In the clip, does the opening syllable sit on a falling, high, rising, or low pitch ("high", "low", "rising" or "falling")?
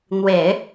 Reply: low